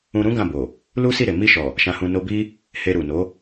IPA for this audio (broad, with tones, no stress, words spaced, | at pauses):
ũ˧ɾũ˦ ɡã˦˨bo˨ | lu˦si˦˨ɾe˨ mi˧ʃɔ˨ | ʃã˧hũ˧ no˧bi˦ | he˧ɾu˨ no˨˦